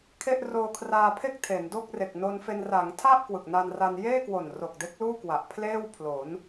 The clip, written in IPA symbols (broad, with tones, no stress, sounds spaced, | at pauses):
kʰ e˥˩ ʔ r oː˧ kʰ r aː˧ pʰ e˥˩ k̚ tʰ e˩˦ n d o˥˩ k̚ r e˨˩ k̚ n o˧ n f e˧ n r a˩˦ ŋ tʰ a˥˩ ʔ k w ɯ˨˩ k̚ n a˧ n r a˧ n j eː˥˩ k w o˨˩ n r o˨˩ k̚ d e˦˥ k̚ l uː˥˩ k w a˨˩ ʔ pʰ l eː˥˩ w pʰ l o˩˦ n